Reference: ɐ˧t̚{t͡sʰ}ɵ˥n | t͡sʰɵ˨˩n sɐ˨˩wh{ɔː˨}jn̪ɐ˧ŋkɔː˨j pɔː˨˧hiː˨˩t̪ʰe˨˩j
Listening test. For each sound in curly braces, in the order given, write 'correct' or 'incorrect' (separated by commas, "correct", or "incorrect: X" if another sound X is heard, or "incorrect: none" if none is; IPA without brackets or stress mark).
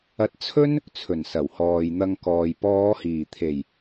correct, correct